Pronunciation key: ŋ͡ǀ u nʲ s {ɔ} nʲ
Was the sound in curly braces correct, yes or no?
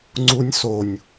no